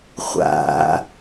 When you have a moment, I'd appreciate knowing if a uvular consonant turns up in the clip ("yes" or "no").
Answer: yes